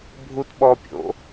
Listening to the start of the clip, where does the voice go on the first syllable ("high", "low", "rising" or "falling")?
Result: high